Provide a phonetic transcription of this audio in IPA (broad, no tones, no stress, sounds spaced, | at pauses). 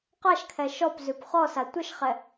q a ʃ kʰ ɛ ʃ ɔ p z ʉ p χ ɔ s a tʷ ə ʃ χ ɛ